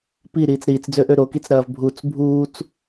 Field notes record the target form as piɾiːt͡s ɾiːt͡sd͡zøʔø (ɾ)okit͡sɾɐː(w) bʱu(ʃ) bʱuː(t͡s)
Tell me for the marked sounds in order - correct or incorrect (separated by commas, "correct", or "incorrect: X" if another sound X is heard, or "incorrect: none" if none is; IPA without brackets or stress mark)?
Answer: correct, incorrect: v, incorrect: t͡s, correct